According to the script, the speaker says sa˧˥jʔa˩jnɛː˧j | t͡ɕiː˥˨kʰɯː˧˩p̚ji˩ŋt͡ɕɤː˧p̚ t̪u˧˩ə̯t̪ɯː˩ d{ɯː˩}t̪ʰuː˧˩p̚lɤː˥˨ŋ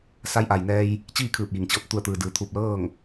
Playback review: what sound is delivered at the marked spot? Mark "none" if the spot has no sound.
ɯː˩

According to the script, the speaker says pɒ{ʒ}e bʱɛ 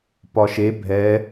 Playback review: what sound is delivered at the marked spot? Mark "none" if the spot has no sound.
ʃ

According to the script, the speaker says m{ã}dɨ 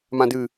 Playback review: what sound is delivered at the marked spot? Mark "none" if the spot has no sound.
ã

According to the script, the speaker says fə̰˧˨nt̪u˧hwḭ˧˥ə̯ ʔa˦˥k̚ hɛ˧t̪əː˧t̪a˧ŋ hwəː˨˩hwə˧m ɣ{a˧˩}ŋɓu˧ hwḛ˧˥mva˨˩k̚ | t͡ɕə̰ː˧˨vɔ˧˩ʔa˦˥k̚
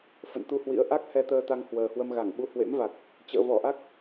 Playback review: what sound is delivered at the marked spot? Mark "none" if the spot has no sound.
a˧˩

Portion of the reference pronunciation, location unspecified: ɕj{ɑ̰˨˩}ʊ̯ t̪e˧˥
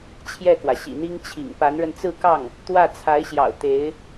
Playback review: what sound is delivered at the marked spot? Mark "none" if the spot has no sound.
ɑ̰˨˩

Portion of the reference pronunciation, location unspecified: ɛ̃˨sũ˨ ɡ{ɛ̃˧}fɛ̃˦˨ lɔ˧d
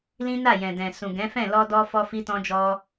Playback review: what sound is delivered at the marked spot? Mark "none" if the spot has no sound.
ɛ̃˨˦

